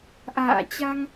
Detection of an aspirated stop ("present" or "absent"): absent